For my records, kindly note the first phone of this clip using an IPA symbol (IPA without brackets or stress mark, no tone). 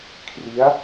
kʰ